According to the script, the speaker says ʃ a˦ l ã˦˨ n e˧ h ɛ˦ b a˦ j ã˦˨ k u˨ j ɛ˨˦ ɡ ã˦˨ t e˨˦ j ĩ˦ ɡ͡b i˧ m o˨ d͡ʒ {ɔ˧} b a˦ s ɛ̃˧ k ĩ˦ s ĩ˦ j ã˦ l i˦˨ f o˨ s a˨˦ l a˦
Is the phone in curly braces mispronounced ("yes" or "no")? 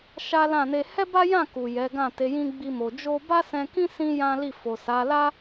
yes